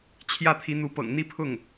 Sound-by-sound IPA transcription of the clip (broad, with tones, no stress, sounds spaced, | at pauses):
t͡ɕʰ j ä˥˩ t̪ʰ i˧˥ n̪ u˧˥ p ɤ̰˨˩ ŋ n̪ i˥˧ pʰ ʊ˥˩ ŋ